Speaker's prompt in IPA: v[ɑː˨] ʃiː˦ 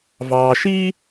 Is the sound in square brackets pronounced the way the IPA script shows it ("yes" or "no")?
yes